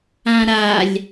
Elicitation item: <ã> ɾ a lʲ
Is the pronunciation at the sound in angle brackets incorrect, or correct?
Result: correct